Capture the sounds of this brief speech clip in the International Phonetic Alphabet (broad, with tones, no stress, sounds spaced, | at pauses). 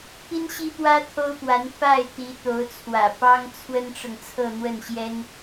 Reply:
p i˥ n ɕ i˥ p w ä˥ t̪ʰ o˥ ʊ̯ p w a˧˥ n f a˥˩ ɪ̯ t̪ i˧˥ t̪ o˧˥ ʊ̯ t͡sʰ w ä̰˨˩ p ɑ˥ ŋ t͡sʰ w ə˥ n ʈ͡ʂ ɤ˨ ŋ t͡sʰ ɤ˥˧ n̪ w ə˥˩ n ɕ j ɛ˥ n